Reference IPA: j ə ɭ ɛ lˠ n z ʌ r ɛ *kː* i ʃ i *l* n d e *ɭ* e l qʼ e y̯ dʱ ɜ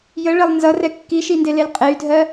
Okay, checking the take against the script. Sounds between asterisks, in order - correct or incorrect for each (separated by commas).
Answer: correct, incorrect, incorrect